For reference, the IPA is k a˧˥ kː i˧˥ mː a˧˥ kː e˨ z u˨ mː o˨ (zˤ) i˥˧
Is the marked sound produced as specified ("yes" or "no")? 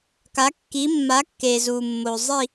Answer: yes